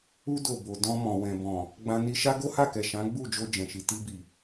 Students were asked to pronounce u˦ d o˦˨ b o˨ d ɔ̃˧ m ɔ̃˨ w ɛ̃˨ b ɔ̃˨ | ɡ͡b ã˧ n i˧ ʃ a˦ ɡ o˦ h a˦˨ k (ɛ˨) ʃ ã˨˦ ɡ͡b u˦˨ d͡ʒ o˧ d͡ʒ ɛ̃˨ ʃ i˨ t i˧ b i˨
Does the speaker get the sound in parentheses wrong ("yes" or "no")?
no